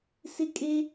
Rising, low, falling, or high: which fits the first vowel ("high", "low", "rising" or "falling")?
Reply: high